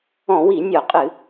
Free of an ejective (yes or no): no